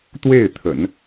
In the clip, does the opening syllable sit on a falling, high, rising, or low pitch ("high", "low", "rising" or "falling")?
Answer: falling